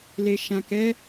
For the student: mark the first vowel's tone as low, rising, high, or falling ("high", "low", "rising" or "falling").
low